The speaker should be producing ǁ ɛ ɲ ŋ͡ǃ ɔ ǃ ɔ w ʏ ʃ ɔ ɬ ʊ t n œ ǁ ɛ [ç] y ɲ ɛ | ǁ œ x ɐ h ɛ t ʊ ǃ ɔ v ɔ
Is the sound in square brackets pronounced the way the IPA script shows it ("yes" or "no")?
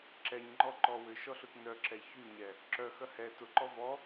yes